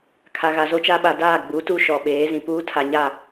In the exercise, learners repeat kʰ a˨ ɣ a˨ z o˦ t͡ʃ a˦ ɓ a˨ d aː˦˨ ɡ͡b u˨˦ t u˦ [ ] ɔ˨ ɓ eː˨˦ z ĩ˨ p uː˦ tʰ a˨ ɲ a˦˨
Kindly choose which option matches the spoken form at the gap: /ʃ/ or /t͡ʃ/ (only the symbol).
ʃ